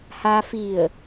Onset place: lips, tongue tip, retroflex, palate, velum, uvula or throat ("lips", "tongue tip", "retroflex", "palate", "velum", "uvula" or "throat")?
throat